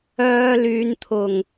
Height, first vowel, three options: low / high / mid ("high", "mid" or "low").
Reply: mid